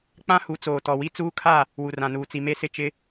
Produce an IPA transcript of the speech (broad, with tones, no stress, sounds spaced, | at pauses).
k͡p ã˦ h u˨˦ t͡s oː˨ t ɔ˨ w i˦ t͡s uː˦ kʰ a˦˨ | w u˨ r ã˨ n uː˨ t͡s i˨ m e˦ s ɪ˦˨ t͡ʃ ɪ˦